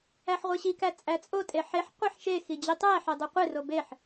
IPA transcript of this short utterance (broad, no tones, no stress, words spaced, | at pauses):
æħʁʷeɕikæ t͡sʼæt͡sʼotʼe ħeħ qʷɛħʃexi d͡ʑitˤæħɛ dˤoqʷero beħ